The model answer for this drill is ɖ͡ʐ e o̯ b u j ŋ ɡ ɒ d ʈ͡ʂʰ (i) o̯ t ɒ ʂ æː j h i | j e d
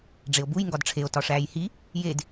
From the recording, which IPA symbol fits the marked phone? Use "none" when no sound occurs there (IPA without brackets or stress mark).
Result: e